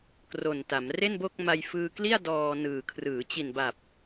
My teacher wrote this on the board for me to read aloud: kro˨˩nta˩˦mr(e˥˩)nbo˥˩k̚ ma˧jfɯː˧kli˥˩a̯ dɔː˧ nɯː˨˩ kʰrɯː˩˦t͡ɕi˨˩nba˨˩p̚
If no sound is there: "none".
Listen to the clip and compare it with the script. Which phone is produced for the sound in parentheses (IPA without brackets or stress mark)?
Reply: e˥˩